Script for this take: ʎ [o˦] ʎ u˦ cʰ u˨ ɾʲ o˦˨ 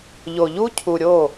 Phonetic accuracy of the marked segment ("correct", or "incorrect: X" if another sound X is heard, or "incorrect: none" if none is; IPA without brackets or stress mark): incorrect: o˨